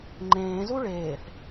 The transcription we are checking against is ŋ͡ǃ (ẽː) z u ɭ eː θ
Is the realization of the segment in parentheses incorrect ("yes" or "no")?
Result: no